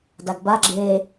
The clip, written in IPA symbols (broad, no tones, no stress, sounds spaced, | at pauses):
d a ɡ b a ɡ͡ǁ e